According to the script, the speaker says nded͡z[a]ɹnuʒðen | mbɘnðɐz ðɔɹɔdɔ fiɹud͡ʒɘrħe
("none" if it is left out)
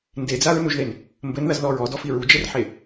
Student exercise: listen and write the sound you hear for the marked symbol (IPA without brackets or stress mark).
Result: a